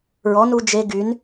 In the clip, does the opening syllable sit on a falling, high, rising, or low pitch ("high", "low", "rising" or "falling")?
rising